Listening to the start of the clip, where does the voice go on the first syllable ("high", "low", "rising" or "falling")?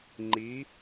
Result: rising